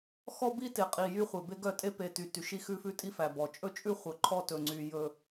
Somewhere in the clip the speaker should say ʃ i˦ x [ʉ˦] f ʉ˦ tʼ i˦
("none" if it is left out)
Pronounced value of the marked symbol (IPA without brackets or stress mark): ʉ˦